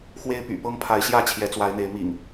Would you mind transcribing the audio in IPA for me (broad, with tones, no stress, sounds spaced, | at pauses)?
x w e˦ ɪ̯ p y̰˨˩ p ɤ˦ ŋ pʰ a˨˦ ɪ̯ ɕ j ä˥˨ t͡ɕʰ j ɛ˨˦ t͡s w a˨˦ ɪ̯ n̪ e˨˦ ɪ̯ m ḭ˨˩ ŋ